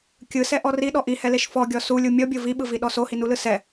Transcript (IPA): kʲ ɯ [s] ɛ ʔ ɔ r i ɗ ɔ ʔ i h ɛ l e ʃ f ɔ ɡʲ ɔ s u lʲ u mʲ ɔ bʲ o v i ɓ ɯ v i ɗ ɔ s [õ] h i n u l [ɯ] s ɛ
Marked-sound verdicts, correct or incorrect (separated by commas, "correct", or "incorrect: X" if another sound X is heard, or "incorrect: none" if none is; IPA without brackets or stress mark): correct, incorrect: o, correct